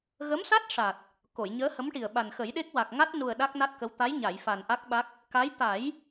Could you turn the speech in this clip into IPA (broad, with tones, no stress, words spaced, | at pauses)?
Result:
ɣə˧˥msa˦˥t̚ʂa˨˩t̚ | ko˨˩˨jɲəː˧˥hə˧˥mʈi˨˩ə̯ ɓa˨˩nxə˨˩˦jɗe˦˥k̚ wa˨˩k̚ŋa˦˥t̚nu˨˩ə̯ ɗa˦˥k̚na˦˥t̚kə˧˥w t̪a˧˥jɲa˨˩˨jfa˨˩n ʔa˦˥k̚ɓa˦˥k̚ | ka˧˥j t̪a˨˩˦j